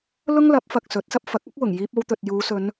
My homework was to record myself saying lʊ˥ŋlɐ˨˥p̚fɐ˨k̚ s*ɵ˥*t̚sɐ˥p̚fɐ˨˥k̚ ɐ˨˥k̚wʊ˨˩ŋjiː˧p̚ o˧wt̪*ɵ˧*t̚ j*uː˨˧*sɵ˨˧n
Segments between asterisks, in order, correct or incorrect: incorrect, incorrect, correct

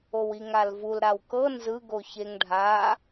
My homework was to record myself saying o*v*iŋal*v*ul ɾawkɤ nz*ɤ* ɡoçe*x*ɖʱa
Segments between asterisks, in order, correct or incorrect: incorrect, correct, incorrect, incorrect

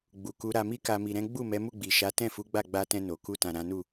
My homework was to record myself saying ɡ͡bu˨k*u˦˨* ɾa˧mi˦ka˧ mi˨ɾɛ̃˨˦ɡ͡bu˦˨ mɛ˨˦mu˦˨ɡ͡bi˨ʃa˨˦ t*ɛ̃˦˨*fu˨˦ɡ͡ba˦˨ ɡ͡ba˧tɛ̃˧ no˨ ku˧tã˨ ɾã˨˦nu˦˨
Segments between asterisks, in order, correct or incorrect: incorrect, correct

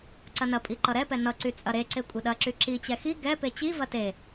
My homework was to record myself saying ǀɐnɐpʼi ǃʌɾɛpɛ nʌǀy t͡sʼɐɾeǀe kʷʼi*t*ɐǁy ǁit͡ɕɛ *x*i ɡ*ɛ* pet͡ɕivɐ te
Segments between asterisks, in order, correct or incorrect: incorrect, correct, correct

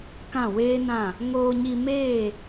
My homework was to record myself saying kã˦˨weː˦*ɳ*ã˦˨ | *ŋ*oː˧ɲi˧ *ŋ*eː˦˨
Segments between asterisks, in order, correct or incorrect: incorrect, correct, incorrect

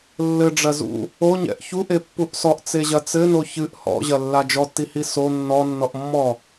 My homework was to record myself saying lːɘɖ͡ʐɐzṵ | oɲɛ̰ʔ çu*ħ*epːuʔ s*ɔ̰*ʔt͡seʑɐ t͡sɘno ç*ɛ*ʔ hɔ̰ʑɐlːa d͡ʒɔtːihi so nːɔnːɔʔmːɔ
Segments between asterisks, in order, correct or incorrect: incorrect, incorrect, incorrect

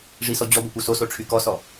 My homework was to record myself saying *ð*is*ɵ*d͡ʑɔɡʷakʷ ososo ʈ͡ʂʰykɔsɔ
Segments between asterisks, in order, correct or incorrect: incorrect, incorrect

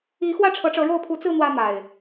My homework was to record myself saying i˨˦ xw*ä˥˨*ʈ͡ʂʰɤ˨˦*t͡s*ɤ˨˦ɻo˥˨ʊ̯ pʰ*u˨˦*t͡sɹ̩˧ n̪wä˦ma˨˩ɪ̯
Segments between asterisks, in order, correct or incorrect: correct, incorrect, correct

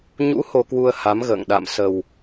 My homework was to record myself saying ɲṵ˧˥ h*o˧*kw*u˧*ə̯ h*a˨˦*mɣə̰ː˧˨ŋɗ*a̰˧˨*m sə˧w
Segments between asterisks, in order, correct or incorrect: correct, correct, correct, correct

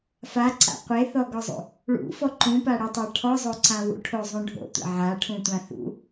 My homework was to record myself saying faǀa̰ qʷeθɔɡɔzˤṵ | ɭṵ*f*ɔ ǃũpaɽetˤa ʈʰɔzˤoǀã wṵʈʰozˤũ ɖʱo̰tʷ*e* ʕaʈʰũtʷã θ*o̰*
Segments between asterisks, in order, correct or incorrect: correct, incorrect, incorrect

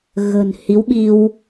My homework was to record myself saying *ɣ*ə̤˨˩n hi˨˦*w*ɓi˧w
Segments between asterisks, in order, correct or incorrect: correct, correct

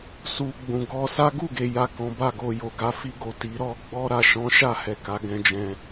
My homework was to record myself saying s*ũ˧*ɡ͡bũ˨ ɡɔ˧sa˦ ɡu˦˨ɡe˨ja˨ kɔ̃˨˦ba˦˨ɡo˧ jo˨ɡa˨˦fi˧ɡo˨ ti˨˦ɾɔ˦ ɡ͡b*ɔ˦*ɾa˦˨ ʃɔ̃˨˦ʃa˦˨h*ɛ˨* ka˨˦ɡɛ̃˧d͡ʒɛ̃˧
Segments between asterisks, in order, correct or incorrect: incorrect, correct, correct

